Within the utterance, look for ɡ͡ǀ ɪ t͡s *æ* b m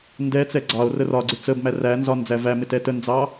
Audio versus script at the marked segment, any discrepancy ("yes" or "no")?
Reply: yes